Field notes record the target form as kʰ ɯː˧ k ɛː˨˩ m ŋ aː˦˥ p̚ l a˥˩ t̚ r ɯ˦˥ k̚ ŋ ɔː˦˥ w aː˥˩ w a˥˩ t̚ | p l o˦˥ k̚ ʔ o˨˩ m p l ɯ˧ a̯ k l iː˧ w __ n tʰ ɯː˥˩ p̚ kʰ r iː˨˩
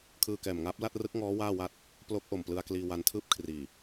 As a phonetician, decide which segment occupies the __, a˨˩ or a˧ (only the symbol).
a˧